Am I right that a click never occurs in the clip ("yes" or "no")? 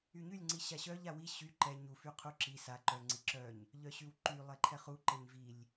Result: no